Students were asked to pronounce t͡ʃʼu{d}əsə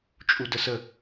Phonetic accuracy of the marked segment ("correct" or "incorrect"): correct